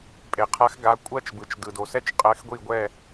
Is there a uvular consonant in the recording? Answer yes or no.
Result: yes